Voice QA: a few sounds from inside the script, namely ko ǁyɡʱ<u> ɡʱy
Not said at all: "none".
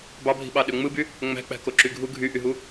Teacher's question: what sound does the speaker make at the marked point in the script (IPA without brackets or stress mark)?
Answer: u